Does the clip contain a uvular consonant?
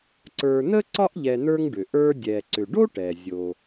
no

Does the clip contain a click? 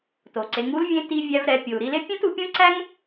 yes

